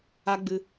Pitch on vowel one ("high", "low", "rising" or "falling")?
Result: high